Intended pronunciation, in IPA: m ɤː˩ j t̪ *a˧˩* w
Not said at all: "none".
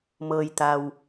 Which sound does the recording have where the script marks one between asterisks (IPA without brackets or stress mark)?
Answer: a˩